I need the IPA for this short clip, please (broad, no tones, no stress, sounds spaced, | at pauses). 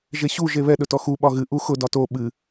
ʒ e ɕ u ʒ e β ɛ ɗ ɵ t ɔ x u ɓ ɒ ɣ ɨ ʔ u x ʊ d ɒ t o ɓ ɨ